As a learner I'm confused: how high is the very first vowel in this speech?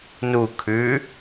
high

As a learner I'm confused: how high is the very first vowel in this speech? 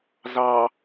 low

